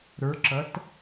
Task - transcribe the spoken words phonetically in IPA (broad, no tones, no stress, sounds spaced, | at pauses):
ɾ ə˞ ǁ ʌ t